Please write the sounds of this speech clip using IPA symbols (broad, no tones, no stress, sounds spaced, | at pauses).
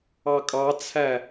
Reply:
ɑ kʼ ɑ t͡sʰ æ